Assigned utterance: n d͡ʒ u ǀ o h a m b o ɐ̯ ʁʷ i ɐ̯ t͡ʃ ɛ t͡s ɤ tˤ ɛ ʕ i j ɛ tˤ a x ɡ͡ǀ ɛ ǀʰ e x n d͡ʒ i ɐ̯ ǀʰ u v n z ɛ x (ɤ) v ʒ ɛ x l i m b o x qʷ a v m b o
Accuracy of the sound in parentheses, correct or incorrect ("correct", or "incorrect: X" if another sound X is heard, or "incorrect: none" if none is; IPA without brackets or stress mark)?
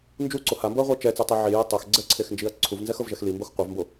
correct